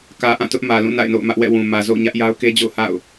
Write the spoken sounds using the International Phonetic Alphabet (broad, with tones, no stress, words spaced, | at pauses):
kä˨ʔã˦˨ tʊ˦ʔmä˨lũ˦˨ na̰˦˨ɪ̯no̰˦˨ʊ̯mä˦ʔ wɛ̰˦˨wũ˨ mä˨zo̰˦˨ʊ̯ɲä˦ʔ ja˦ʊ̯ke˦d͡ʑo̰˦˨ʊ̯ha̰˦˨ʊ̯